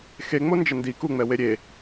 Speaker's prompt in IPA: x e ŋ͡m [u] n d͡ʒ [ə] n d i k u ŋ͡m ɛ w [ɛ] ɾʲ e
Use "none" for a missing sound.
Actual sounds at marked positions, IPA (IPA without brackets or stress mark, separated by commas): o, ə, e